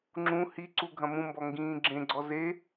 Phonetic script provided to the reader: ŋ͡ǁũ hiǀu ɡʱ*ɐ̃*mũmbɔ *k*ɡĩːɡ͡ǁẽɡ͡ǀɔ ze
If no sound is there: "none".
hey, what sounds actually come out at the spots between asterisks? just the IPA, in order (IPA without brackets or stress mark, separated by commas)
ɐ̃, ŋ